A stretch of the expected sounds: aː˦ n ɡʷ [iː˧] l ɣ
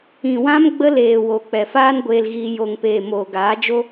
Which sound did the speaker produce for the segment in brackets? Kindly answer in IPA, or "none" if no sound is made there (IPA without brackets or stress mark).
eː˧